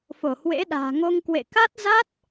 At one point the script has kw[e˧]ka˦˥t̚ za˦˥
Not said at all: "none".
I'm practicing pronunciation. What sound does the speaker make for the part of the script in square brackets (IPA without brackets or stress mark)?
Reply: ḛ˧˨